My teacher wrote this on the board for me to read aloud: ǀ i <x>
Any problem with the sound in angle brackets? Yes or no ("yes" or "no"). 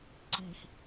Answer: no